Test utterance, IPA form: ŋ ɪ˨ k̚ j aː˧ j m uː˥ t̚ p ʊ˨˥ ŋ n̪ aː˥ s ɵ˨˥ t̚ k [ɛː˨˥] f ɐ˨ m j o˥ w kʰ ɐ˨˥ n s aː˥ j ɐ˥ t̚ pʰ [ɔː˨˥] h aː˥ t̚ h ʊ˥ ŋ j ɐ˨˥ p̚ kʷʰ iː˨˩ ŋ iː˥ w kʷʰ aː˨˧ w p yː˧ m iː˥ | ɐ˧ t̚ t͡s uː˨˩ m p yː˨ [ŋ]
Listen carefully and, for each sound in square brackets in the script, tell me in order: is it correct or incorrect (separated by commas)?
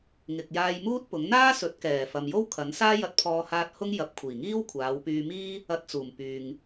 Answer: incorrect, incorrect, correct